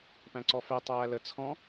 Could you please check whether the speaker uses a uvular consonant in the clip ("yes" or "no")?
no